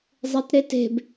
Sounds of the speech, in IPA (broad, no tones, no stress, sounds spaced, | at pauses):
zˤ e t ɾ e t e̤ b